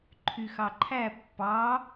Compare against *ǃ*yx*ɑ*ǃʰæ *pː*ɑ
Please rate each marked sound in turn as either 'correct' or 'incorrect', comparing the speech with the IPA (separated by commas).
incorrect, correct, correct